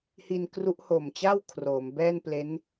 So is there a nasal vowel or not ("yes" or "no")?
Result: no